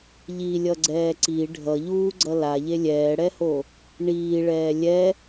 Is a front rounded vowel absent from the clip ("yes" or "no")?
yes